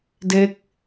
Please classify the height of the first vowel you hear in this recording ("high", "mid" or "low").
mid